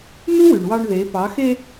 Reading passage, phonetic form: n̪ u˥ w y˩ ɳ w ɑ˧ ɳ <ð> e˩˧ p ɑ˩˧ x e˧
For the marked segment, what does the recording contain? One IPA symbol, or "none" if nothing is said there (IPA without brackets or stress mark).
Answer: ð